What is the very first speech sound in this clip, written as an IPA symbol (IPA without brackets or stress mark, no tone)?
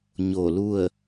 ɲ